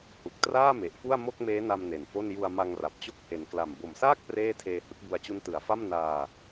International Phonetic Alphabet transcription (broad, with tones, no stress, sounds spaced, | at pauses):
h u˨˩ k̚ t r aː˥˩ m e˨˩ ʔ f u˥˩ a̯ m o˥˩ k̚ m eː˦˥ n a˧ m n e˨˩ n f o˥˩ n j u˧ a̯ m a˧ ŋ r a˨˩ p̚ t͡ɕ o˦˥ k̚ h e˨˩ n k l a˨˩ m b o˨˩ m s aː˥˩ k̚ p r eː˥˩ tʰ eː˧ h ɯ˦˥ k̚ b u˧ a̯ t͡ɕ u˦˥ n t ɯ˩˦ a̯ f a˥˩ m n aː˧